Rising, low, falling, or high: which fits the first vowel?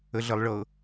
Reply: low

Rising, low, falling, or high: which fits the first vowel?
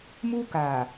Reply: high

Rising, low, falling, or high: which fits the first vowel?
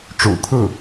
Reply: low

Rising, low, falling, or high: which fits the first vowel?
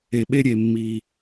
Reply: low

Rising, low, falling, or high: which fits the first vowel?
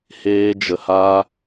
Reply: high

